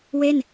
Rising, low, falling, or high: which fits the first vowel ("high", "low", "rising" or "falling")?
falling